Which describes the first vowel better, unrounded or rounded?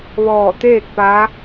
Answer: rounded